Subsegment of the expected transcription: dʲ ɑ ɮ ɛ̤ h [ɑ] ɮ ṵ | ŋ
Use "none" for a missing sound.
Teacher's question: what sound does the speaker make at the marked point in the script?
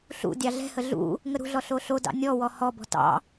ə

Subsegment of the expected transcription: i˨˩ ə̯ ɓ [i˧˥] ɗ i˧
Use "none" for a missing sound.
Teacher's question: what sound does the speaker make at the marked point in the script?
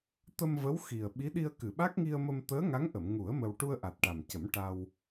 i˧˥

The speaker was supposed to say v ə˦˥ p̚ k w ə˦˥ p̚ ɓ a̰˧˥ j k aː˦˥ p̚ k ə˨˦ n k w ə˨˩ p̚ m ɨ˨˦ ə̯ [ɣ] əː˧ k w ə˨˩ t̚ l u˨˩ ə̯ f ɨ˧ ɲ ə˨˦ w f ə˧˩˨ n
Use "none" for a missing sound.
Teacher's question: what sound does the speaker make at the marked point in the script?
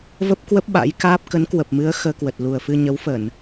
x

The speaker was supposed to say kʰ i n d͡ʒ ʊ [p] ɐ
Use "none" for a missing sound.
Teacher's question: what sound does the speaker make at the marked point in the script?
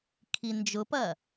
p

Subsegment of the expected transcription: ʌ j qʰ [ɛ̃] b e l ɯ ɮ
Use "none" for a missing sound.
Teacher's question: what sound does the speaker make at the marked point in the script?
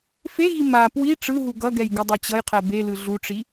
ɛ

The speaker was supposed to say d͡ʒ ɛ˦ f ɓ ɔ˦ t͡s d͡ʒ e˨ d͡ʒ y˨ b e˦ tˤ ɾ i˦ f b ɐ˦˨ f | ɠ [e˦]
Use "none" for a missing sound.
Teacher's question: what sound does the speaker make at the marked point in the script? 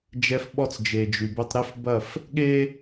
e˦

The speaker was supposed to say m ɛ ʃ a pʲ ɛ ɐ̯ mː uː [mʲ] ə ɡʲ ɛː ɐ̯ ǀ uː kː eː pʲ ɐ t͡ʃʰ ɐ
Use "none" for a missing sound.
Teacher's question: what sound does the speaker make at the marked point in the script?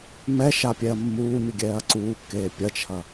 mʲ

